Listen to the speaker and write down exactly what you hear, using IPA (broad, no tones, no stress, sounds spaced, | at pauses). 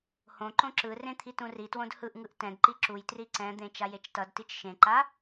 h õ ǃ õ ǁ ɯ r ẽ t̪ʰ i t ũ r i t w õ d h ɯ ʔ ŋ ɯ ʔ t ɛ̃ d ǃ i ǁ u j t r i ǀ ɛ̃ d̪ ẽ t͡ʃ a j e t͡ʃ t ʌ d t i t͡ʃ ʃ ẽ ǃ a